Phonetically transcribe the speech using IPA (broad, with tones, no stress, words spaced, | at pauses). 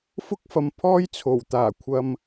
fʊ˥k̚fɐ˨˧mpʰɔː˥jt͡sʰo˨˩w t̪aː˨˩kʷʰɐ˨m